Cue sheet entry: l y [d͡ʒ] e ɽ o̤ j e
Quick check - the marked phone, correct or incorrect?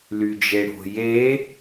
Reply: correct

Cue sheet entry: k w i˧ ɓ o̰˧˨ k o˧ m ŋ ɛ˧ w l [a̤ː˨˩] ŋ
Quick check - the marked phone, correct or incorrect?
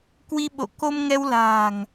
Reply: correct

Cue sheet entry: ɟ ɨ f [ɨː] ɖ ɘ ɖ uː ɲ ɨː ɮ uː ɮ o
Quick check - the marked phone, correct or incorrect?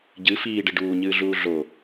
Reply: incorrect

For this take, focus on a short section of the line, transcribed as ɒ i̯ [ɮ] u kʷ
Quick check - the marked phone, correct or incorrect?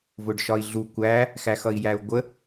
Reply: correct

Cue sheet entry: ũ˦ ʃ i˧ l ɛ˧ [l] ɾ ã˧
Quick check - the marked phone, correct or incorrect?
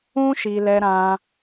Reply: incorrect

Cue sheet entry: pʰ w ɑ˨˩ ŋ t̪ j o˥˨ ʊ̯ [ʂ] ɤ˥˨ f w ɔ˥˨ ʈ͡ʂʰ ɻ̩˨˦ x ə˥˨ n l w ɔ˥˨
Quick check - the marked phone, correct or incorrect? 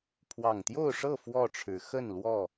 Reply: correct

